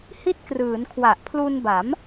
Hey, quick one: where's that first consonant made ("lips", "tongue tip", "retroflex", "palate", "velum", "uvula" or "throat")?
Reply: throat